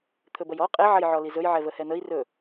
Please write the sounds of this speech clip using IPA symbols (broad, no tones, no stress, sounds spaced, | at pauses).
t̪ʰ ɵ b ɐ j ɔ qʼ ɛ ʕ ɐ j ʕ ɔ l i z ɵ j ʕ ɛ v ə h ɛ n̪ ə i̯ r ɵ